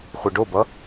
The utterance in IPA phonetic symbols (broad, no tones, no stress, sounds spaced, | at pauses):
χʷ i ɖ o b ʌ